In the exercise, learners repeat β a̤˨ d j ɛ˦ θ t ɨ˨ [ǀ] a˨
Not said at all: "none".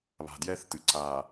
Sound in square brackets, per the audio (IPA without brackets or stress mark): ǀ